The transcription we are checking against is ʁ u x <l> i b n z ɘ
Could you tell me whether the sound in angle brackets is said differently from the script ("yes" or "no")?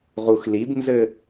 no